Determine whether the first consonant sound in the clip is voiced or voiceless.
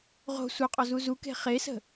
voiced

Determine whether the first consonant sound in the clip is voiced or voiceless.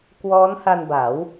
voiceless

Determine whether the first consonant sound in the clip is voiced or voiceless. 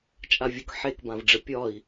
voiceless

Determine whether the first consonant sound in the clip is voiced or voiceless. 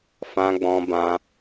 voiceless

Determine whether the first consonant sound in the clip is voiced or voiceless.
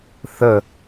voiceless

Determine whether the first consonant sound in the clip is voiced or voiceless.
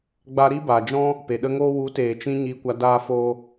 voiced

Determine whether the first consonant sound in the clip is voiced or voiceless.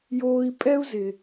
voiced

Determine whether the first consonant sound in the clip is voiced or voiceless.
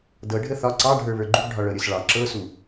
voiced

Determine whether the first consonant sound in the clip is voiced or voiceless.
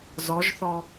voiced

